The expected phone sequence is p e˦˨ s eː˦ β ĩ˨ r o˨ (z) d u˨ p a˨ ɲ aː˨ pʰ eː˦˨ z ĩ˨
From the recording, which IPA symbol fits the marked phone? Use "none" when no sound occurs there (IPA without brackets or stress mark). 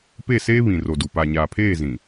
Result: none